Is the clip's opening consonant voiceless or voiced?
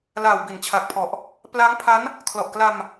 voiced